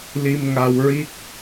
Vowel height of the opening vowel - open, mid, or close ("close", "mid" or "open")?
close